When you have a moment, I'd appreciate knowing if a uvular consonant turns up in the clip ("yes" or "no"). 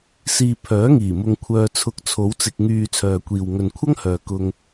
no